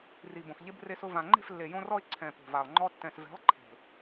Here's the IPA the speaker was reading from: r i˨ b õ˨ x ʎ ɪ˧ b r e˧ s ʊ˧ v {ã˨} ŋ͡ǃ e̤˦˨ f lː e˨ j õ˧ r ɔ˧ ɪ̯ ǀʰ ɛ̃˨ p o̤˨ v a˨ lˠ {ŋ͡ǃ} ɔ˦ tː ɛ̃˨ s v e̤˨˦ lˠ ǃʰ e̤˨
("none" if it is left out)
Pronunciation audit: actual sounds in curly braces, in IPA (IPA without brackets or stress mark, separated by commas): ã˨, ŋ͡ǃ